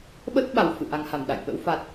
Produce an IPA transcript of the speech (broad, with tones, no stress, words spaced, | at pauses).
ɓə˦˥t̚ ɓa˨˩wfɨ̰˧˨ ʔa˨˩ŋha˧˩m ɗa̰˧˨jɓə̰˧˥w fa˨˩t̚